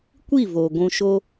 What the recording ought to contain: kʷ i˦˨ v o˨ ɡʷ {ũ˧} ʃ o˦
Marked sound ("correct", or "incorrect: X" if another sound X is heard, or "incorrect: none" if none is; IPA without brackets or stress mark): correct